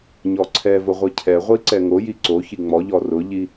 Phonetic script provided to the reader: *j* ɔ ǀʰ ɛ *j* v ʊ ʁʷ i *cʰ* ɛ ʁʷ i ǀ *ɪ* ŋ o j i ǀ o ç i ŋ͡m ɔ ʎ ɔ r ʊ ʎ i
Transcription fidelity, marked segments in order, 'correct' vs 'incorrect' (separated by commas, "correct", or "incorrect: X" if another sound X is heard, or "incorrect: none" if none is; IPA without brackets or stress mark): incorrect: ɲ, incorrect: none, correct, incorrect: ɛ